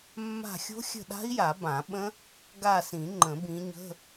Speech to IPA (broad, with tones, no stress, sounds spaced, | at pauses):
mː a̤˦˨ xʲ o̤˦˥ xʲ ə̤˦˨ ɗ a̤˦˥ i̯ j a˨˩˦ b ã˨˩˦ ɓ ə̃˦˥ | ɡ a˦˨ s ĩ˨˩˦ ŋ͡ǃ ə̃˨˩˦ b ĩ˨˦ ɲ ə̤˧˥˧